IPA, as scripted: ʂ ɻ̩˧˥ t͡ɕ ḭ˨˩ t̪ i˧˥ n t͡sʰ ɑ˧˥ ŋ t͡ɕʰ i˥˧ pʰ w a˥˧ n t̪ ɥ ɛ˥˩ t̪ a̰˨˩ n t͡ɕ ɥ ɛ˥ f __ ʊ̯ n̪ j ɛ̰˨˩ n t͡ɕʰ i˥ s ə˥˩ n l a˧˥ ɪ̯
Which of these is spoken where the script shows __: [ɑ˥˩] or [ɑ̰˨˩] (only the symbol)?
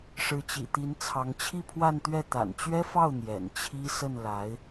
ɑ˥˩